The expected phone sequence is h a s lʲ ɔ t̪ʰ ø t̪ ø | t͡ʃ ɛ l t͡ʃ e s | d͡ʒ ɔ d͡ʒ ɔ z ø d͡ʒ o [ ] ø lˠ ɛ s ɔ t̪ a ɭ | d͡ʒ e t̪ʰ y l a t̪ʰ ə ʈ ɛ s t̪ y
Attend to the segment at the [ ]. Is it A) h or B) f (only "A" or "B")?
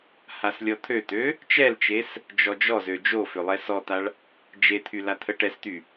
B